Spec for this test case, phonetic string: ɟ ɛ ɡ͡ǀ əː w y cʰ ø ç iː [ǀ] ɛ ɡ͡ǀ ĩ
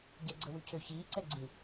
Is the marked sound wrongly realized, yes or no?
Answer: no